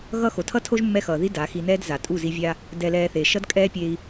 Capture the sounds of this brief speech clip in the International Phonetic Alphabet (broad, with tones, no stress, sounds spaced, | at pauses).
ɣ ʌ˦ x o˨ tʰ ʌ˦ tʰ o˦ ʒ mː ɛ˧ x ʌː˨ ð i˦ d a˨˦ x i˧ n ɛː˦ d z a˨ tʼ u˦˨ z i˧ vʲ a˦ | d ɛ˨ l ɛː˨ θ e˨ ʃ ʌ˦ d kʼ ɛː˦ pʲ e˧ i̯